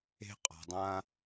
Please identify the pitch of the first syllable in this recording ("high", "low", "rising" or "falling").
high